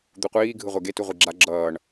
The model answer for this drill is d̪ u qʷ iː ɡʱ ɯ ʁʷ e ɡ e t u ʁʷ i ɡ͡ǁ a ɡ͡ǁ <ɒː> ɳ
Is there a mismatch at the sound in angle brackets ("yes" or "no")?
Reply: yes